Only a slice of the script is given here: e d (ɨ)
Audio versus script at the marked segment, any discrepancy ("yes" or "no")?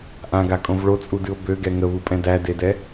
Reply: yes